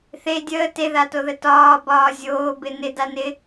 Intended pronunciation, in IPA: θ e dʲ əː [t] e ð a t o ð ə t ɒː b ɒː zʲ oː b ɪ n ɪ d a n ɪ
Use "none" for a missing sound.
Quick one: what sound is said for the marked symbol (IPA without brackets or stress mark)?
t